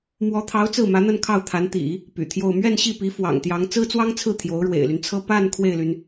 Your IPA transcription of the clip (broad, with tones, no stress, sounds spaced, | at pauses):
m w ɔ˧˥ t̪ʰ ɑ˧˥ ʊ̯ t͡s ɹ̩˥˩ m ä˧˥ n̪ ə˥˧ n kʰ ɑ˥˩ ʊ̯ t̪ʰ a˧˥ n t̪ ḭ˨˩˦ | p y̰˨˩ t̪ʰ j o˥˧ ʊ̯ m ɥ ɛ˥˧ n ɕ i˥˩ p i˧˥ f w ɑ̰˨˩ ŋ t̪ j ɑ˧˥ ŋ t͡s ɹ̩˥ t͡s w ɑ˥ ŋ t͡sʰ ɹ̩˥˩ t̪ʰ j o˧˥ ʊ̯ ɻ w ḛ˨˩ ɪ̯ l y˦ n t͡sʰ ɤ˥ p a˥˧ n kʰ w e˥˩ ɪ̯ l y˩ n